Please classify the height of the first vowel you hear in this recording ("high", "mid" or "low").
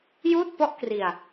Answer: high